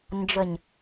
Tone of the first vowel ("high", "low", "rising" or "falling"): low